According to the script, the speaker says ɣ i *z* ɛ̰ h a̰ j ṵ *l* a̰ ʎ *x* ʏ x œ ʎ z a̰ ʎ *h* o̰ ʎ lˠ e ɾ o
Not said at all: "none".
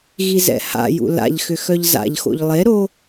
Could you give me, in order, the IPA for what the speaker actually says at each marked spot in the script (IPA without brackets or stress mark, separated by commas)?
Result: z, l, x, x